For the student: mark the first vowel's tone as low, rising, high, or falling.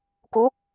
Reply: rising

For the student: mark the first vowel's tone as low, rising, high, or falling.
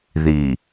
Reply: low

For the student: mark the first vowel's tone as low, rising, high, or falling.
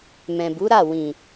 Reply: low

